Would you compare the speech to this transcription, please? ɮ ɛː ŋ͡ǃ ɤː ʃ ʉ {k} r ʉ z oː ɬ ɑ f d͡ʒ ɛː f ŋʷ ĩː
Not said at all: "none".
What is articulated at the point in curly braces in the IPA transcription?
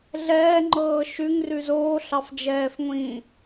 ŋ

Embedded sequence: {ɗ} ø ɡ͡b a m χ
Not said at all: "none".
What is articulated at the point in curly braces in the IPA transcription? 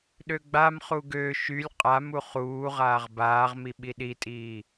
ɗ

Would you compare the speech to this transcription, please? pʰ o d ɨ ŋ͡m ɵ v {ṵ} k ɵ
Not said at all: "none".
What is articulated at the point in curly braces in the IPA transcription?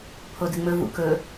ṵ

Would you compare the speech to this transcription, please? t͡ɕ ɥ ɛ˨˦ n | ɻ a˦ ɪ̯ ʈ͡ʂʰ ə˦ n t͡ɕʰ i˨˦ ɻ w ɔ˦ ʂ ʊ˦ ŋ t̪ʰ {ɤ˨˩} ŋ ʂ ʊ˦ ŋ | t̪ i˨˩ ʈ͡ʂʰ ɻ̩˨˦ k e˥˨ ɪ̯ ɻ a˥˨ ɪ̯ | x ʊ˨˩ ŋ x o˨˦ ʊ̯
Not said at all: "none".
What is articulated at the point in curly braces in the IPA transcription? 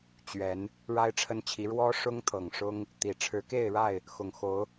ɤ˨˩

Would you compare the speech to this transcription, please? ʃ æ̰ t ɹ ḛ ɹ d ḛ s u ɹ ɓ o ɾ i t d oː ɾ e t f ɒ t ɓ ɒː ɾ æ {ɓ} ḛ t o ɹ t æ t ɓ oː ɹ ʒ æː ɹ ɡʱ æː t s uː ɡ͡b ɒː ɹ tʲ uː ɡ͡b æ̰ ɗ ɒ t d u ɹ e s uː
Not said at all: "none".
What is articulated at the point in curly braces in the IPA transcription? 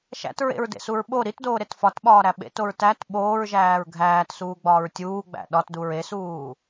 ɓ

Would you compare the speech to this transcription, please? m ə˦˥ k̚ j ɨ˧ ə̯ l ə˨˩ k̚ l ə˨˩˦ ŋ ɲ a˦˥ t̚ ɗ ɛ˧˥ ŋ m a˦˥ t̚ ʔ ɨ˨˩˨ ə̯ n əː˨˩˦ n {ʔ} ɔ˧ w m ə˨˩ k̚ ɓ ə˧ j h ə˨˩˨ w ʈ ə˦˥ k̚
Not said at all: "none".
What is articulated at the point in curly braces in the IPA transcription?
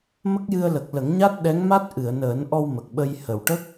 ʔ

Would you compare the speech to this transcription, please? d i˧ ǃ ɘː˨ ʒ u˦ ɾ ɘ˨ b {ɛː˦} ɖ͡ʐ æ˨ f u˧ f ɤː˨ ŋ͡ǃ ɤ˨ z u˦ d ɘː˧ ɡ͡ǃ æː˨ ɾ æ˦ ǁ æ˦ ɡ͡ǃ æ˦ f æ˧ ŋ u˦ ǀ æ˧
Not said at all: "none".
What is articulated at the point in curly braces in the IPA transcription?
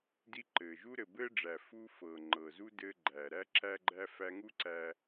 ɘː˦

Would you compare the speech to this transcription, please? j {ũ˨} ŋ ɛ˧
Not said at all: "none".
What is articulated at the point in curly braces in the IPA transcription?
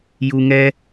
u˨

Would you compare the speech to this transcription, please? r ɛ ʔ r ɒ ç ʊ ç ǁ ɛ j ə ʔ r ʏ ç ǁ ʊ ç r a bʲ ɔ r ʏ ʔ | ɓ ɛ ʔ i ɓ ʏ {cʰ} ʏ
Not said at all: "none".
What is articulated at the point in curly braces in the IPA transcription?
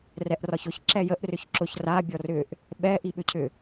cʰ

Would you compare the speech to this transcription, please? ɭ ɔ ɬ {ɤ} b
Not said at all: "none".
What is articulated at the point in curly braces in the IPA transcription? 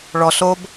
o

